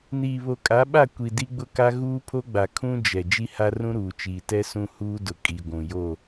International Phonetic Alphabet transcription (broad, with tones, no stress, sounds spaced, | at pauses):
n iː˨ β o˨ kʼ a˨˦ ɓ a˦˨ kʷ i˨ d i˦ ɡ͡b ʊ˦ k a˦ ɣ uː˦ pʰ o˦ ɡ͡b a˨ kʰ ũ˦ d͡ʒ ɛ˨ d͡ʒ i˦ h a˦ r ũ˦ ɾ uː˨ t͡ʃ iː˨ t ɛ˦ s ũ˦ h uː˦ d ʊ˨ kʼ i˨ ɡʷ ũ˨ j o˦˨